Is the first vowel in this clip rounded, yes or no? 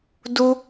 yes